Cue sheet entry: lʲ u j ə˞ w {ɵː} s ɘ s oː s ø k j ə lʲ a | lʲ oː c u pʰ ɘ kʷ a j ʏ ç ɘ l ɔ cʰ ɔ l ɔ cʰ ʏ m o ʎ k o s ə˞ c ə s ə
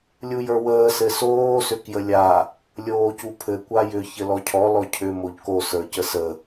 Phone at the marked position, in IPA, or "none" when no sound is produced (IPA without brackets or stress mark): əː